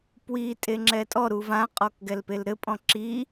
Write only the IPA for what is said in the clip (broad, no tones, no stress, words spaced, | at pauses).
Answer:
pwi tʼeŋ͡ǁɛtʼɔɾu vãqʼɔk ɡɛlpelɾɘpʼɔ̃ ǁi